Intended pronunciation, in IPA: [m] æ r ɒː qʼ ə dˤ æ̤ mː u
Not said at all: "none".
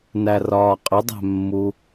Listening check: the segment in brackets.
n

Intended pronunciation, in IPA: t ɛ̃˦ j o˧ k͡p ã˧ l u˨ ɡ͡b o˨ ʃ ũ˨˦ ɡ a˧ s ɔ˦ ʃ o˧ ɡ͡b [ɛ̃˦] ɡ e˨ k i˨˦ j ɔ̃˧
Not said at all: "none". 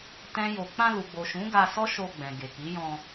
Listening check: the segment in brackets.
ɛ̃˨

